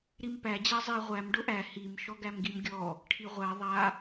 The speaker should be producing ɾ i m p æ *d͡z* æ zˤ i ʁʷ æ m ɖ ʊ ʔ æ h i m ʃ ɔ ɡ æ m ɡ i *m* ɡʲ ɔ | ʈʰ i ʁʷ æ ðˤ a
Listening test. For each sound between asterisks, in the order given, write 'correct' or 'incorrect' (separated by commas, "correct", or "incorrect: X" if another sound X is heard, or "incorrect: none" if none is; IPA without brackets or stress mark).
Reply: incorrect: d͡ʑ, correct